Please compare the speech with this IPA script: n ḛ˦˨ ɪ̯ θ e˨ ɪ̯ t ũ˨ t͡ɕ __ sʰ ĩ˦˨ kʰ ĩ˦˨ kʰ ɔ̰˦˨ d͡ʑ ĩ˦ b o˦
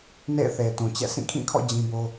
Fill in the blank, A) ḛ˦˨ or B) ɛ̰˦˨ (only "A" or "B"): B